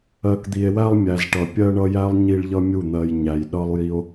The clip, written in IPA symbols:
ɜ˨ k d̪ i˨ e̯ w æ˧ lˠ mʲ æ˨ z ʈ ʌ˨ pʲ ɜ˧ ɳ ʌ˦ j æ˦ lˠ ɲ i˧ ɭ ʎ ʌ˧ mʲ u˦˨ n̪ ɜ˧ j ɲ æ˨ j ɗ ʌ˦ lˠ j i˦ o̯

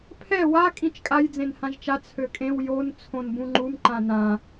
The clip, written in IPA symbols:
pʰ ɛ w a kʼ ĩ t͡ʃ kʼ a j d͡z ẽ n h ã ʒ t͡ʃ a t͡sʰ ø kʼ ẽ w j o n t͡sʰ õ n b ũ ŋ͡ǃ u m ǃ ã n ã

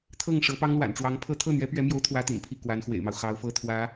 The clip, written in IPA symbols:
t̪ʰ ɤ˥˩ ŋ ʂ ɤ˧˥ p ɑ˥ ŋ l w a̰˨˩ n ʈ͡ʂ w ɑ˧˥ ŋ pʰ ɤ˥ t̪ʰ ɤ˥˩ n̪ ɥ ɛ˧˥ p ɥ ɛ˧˥ m j o˧˥ ʊ̯ t̪ʰ w ä˥ t̪ ḭ˨˩ n pʰ i˥˩ k w a˧˥ n x w ḛ˨˩ ɪ̯ m ɑ˦ ʊ̯ x ɑ˧˥ ʊ̯ f ɤ˥ t̪ʰ w ä˧˥

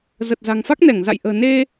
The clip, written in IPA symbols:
z ə˨˩ t̚ z a̤˨˩ ŋ f a˦˥ k̚ n ɛ˧˩ ŋ z a̰˧˨ j ʔ ə̤ː˨˩ n e˧

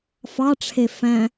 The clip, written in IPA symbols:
f ɑ ʈ͡ʂʰ e f æ̃

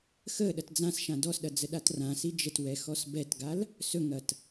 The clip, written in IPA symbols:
x ə ɗ ɐ t d͡z ã s ʃ ã d ɔ s ɗ ɐ d͡z ə ɗ a t r ã s i d͡ʒ ə t w ɛ x ɔ s b ɛ t ɡ a l | s ɵ ŋ ɐ t

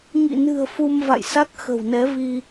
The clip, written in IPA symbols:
ŋ ḭ˧˨ n ɨ̤˨˩ ə̯ f u˧ m v a̰˧˨ j s a˦˥ k̚ x ə̤˨˩ w n ɛ˨˦ v i˧

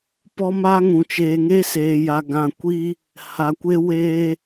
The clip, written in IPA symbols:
p ɔ˦ m a˦ ŋ ũ˨ t͡ʃ eː˨ ŋ e˦ s eː˨ j a˨ ɡ ã˨ kʷ i˦ | h a˨ kʷ e˦ w eː˦

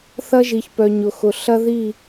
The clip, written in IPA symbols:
θ ɐ˦ ʒ i˨ ç p œ˨ ɲ ʊ˨ x ʊ˨ ɬ ɐ˦ ð i˦˨

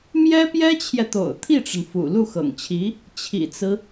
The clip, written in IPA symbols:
m j ɛ˥ p j ɛ˥ t͡ɕʰ j ɛ˨ t̪ o̰˨˩ ʊ̯ t̪ʰ i˥˩ ʈ͡ʂ ə˩ n f ṵ˨˩ l u˥˩ x ɤ̰˨˩ ŋ t͡ɕʰ i˧˥ | t͡ɕʰ ḭ˨˩ t͡s ɹ̩˦

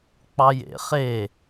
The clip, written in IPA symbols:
k͡p ɑ j ḛ χ e

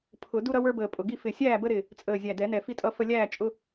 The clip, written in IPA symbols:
pʰ ʊ˨˩˦ d u˦ ɾ ʌ˦ w ə˞˦ b əː˨˩ pʼ ʊ˨˩ ɡ i˥˨ f ɪ˨˩ sʲ æː˥˨ b ə˦ ɾ ɪ˨˩ | t͡sʼ əː˨˩ zʲ æ˨˩ d ɛ˨˩˦ n ɛ˨˩ f i˥˨ tʼ ʌ˦ f ə˦ lʲ æː˥˨ t͡ʃʼ ʊ˦

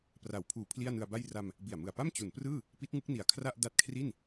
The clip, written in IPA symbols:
p r a˩˦ w pʰ uː˨˩ pʰ l i˥˩ a̯ n ɯ˧ a̯ b a˥˩ j r a˧ m | b i˨˩ a̯ m ɯ˨˩ a̯ p a˥˩ m t͡ɕ u˩˦ n p r ɯː˥˩ | p i˦˥ t̚ ŋ ɯ˦˥ k̚ n i˨˩ a̯ kʰ r a˥˩ ʔ d a˦˥ t̚ kʰ r i˥˩ n

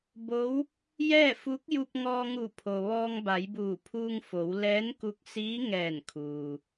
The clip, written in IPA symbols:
b o˧˥ w | j ɛː˥˨ f u˧˥ k̚ j u˧ p̚ ŋ ɔː˧ ŋ u˧˩ pʰ o˩ ʋ ɔː˧ ŋ b a˩˧ j b uː˧˩ pʰ uː˧ ŋ f o˩˧ w l ɛː˧˥ n k u˧ k̚ s iː˧˥ ŋ ɛː˧˩ n kʰ uː˩

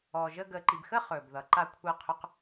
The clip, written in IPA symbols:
ɔː˨ ʒ əː˧ ɡ əː˨ ǃ i˨ b x ə˦ χ ɵː˨ b ð ʌ˨ ǃ a˧ kʷʰ əː˧ qʰ ɵ˧ q

